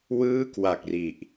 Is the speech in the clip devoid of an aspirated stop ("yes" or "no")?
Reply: yes